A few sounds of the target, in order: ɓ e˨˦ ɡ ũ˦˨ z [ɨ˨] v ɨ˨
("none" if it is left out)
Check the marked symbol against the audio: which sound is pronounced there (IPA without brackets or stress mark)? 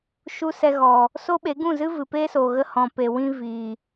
ɨ˦